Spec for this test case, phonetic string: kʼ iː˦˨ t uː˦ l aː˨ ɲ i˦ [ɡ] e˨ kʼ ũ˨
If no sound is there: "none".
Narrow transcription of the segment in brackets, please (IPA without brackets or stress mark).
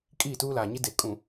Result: d